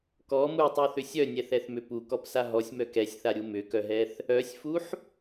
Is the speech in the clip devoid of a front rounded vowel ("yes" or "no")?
no